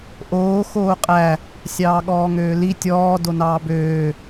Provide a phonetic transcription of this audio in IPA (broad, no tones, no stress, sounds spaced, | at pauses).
ʔ oː x oː qʼ æ | sʲ ɑː ɠ ɔː ŋ øː l i tʲ ɔː d o n ɑː b øː